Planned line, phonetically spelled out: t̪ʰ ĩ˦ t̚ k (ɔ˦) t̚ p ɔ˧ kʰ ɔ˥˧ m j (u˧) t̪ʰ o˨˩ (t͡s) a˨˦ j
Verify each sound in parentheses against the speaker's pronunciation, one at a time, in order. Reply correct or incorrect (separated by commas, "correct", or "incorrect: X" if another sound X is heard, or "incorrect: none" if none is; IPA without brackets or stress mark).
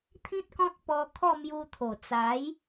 incorrect: ɔ̃˦, correct, correct